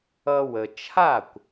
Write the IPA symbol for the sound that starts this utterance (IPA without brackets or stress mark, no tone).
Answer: ʌ